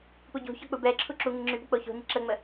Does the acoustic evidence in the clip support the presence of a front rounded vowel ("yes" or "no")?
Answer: yes